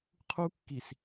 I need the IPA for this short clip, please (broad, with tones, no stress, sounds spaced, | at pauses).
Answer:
qʰ u˦ kː i˨ s